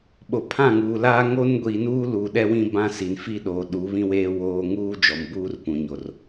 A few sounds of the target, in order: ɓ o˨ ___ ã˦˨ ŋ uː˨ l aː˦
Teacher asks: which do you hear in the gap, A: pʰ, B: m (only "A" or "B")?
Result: A